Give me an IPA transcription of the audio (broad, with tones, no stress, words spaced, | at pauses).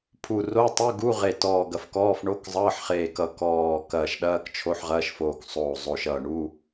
pʰu˧˩ ro˧˥˧tˤu˧˥˧ɡu˧˥˧ ʁe˧˩tɔː˧˩ɡɐ˧˩f kɔː˧˥˧fɳo˧˥˧kzˤʌː˧˥˧ħχeː˧˩ kʌ˧˩kɔː˧˩ kɐː˧˩ʃɗɐː˧˥˧kt͡ʃʰo˧˥˧ħ ʁɐː˧˥˧ʃfoː˧˩ksˤoː˧˩ zˤo˧˩ʃʌː˧˩ ɳu˧˥˧